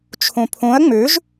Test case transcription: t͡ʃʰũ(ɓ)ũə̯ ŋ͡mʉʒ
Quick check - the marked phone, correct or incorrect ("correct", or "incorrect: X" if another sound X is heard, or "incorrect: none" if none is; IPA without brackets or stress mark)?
incorrect: pʰ